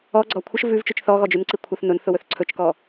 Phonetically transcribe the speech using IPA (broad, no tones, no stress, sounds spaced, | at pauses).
ɔ ɡ͡ǀ ɔ kʷʰ ə ʃ v ʉ v t͡ʃ ʉ t͡ʃ θ ɔ ɣ ɔ d͡ʒ ʉ n ǀ i kʷʰ ɐ θ n ʊ n θ ʊ w ɵ θ ǀʰ ɵ t͡ʃ k ɔ